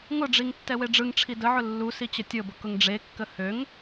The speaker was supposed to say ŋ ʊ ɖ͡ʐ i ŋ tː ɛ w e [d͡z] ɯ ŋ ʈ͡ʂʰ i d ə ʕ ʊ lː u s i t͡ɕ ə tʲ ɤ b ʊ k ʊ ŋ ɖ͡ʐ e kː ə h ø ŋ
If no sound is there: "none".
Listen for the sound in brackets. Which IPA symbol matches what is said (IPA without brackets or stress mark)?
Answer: ɖ͡ʐ